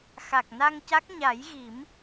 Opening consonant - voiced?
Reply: no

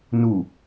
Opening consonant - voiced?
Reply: yes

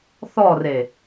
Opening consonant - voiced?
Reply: no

